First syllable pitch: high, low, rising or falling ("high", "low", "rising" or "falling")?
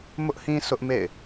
high